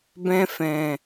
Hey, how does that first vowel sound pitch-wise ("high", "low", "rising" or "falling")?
high